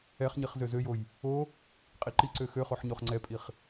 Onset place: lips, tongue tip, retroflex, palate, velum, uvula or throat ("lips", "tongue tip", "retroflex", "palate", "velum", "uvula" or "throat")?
uvula